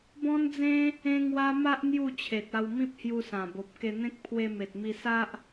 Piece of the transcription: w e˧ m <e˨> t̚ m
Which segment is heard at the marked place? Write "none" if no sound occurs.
e˨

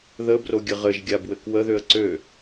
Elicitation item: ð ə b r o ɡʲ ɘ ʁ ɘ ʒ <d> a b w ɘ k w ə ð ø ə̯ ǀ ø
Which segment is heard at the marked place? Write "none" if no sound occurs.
ɡʲ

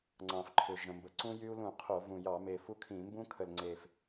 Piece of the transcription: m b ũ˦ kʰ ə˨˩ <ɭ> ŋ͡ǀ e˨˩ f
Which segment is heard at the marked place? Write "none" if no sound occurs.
l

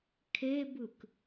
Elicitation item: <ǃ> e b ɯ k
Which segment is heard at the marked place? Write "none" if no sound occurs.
kʰ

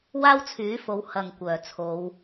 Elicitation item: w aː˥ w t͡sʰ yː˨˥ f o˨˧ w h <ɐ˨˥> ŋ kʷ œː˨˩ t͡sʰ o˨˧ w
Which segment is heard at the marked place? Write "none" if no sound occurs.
ɐ˨˩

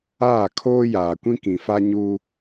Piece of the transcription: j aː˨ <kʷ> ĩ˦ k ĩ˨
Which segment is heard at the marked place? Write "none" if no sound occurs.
kʷ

